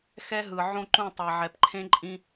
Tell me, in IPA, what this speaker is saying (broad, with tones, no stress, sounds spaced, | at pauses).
x ɛ˦ ɦ ɯ˨ ʕ õ˦ ǃ ũ˦˨ tˤ ɛ˨ ʕ ɛ˨ p ǃʰ ẽ˦ ǃʼ ĩ˦